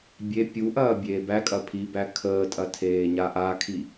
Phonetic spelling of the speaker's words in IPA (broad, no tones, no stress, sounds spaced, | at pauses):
bʲ e pʲ u ʔ ɐː bʲ eː b æ kʼ ɐ pʰ i b æ kʰ əː tʼ ɐ tʰ eː ɲ a ʔ a kʰ i